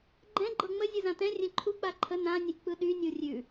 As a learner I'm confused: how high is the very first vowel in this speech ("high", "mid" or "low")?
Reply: mid